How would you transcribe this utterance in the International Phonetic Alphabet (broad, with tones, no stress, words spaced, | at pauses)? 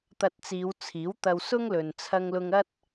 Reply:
t̪ɐ˧t̚t͡siː˨˧wt͡sʰiː˨˥wt̪ɐ˧w sʊ˥ŋlɵ˨n t͡sʰɐ˧ŋlʊ˧ŋɐ˥t̚